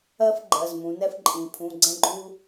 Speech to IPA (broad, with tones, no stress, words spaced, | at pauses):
ɜ˦f ɡ͡ǃɜ˩˧˩zmũ˩˧nɛ˦f ǃʼĩ˩pʰũ˩˧˩ ɡ͡ǀɛ̃˦ɡ͡ǃu˦